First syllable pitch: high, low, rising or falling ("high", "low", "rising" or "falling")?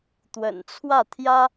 low